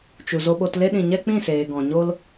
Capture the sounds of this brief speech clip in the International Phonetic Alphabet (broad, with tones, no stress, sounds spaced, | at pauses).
t͡ʃ u˨ z o˧ ɓ o˧ t l e˦ ɗ ĩ˨ ɲ ɛ˦ k͡p ĩ˦˨ s eː˨ ɡ ɔ̃˨ ɲ o˦ l